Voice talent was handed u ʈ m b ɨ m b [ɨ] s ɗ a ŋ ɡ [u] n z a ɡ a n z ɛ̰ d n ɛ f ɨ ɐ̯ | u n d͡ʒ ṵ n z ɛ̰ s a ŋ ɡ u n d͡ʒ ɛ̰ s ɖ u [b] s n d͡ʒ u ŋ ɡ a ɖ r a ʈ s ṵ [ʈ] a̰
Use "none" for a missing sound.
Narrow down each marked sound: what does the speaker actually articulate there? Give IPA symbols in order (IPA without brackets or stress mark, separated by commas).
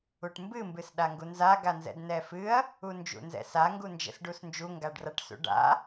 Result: ɨ, u, none, ɖ